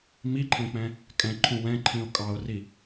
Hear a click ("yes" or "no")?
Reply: yes